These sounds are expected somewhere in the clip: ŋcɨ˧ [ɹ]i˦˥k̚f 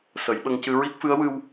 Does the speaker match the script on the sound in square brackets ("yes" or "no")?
yes